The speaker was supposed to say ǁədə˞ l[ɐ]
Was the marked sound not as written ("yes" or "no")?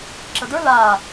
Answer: yes